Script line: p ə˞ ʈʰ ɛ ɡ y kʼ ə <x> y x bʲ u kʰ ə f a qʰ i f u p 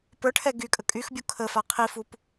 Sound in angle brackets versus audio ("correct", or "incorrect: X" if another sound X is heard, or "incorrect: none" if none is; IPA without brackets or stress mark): incorrect: kʼ